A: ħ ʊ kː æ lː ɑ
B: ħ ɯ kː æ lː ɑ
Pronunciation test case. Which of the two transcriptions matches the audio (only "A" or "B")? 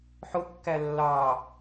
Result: A